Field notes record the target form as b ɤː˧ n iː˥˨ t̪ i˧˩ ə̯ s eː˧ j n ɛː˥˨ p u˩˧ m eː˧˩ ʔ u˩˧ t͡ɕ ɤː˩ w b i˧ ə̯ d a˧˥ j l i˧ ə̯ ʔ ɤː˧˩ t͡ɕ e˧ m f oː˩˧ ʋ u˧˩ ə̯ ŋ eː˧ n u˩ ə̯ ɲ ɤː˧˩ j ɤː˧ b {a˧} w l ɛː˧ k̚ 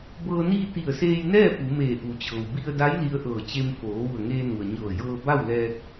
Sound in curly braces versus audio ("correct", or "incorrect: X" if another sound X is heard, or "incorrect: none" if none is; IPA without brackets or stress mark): incorrect: a˥˨